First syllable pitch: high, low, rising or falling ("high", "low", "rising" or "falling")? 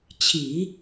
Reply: low